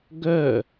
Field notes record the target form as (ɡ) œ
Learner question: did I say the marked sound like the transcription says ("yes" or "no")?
yes